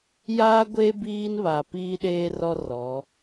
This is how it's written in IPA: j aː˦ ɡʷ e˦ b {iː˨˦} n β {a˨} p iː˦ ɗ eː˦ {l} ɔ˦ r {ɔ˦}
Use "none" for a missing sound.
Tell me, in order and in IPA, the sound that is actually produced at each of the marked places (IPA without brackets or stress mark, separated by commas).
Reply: iː˦, a˨, r, ɔ˨˦